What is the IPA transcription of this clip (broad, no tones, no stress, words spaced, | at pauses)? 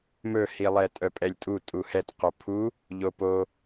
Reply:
mɵhilˠɛ tʼœpʼɛlʲtʼu tʼuhɛt qopʰu | ʎopo